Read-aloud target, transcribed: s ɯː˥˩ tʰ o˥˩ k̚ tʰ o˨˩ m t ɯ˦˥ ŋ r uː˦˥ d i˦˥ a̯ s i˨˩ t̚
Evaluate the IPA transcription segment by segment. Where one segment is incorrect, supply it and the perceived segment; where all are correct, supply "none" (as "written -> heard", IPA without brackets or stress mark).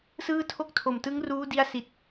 none